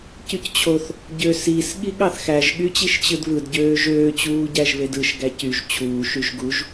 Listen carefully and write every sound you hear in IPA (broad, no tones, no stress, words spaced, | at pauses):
cyct͡ɕʰoθ | ɟøsis ɠiɠɑθxæʒ ɠyt͡ɕiʃt͡ɕɯdβɯd ɟøːʒøː t͡ɕuːɟæʒβedɯʃ ɡæcyʒ t͡ɕʰuː ʃyʒɡuʒ